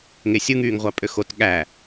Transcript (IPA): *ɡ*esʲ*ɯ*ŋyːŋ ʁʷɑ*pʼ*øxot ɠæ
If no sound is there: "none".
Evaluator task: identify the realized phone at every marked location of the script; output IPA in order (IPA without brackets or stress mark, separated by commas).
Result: ŋ, ɯ, pʼ